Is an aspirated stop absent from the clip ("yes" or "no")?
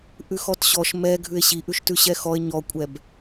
yes